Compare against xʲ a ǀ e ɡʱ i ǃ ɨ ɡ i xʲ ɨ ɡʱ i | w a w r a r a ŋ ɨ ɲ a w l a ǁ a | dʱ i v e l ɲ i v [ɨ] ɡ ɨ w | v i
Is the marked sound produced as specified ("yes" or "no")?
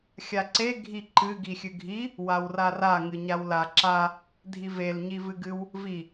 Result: yes